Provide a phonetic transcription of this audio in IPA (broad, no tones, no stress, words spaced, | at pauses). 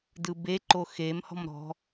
dɯbeǃo xem hɔ̤mɾɔ̤